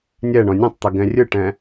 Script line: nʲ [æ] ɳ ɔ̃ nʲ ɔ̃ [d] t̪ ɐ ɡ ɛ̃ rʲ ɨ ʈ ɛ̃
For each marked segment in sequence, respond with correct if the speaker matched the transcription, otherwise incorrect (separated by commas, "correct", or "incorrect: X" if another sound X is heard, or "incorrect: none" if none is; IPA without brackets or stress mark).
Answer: incorrect: ɛ, incorrect: tˤ